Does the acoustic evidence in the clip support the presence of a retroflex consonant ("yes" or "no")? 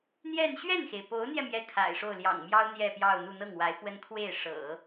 yes